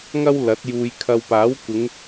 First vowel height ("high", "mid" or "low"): low